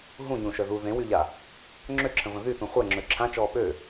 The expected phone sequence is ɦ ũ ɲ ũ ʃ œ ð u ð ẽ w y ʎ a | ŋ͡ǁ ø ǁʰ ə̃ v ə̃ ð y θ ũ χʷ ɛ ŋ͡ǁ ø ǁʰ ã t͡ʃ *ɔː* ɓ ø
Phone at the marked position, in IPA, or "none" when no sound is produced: ɔː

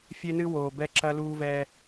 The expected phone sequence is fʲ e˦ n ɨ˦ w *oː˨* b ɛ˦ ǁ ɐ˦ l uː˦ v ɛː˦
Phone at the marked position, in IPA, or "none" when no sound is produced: oː˨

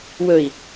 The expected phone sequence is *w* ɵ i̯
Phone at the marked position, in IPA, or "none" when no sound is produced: w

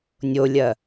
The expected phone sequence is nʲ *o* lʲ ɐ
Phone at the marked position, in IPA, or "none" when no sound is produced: o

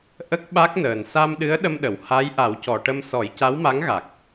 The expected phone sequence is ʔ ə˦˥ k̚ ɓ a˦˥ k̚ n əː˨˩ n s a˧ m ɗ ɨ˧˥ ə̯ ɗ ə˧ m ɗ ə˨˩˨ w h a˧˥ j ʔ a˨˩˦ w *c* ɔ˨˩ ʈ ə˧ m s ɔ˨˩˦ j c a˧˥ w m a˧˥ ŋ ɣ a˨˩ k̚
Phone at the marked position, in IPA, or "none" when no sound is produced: c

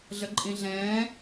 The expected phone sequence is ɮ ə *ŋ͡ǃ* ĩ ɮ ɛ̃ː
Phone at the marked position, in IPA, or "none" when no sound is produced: ǃʼ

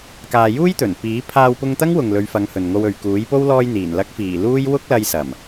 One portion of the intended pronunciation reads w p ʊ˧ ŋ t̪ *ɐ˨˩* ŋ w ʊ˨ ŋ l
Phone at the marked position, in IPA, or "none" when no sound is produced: ɐ˥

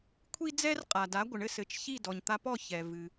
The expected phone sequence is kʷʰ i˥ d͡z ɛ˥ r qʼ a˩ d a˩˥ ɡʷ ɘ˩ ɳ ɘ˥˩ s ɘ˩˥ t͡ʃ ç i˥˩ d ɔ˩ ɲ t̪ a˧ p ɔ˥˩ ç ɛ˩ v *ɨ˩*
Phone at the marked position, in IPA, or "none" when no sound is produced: ɨ˩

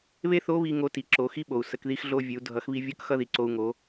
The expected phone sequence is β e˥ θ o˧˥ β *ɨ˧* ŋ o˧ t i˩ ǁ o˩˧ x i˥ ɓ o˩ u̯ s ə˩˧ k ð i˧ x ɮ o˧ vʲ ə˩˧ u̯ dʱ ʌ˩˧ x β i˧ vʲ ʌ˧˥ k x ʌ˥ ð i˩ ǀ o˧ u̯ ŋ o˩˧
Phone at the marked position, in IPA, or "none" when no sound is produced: i˧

